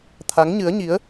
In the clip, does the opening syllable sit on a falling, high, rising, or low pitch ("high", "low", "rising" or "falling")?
rising